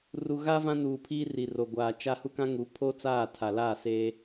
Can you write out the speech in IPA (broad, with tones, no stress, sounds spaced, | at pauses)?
r u˨ ɣ a˦ v ã˦ n uː˨ pʰ iː˦ r i˨ r o˨ ɡʷ aː˨ t͡ʃ a˦ h u˦ k ã˦ ŋ u˨˦ pʰ o˦ t͡s aː˦˨ tʰ a˨ l aː˦˨ s eː˦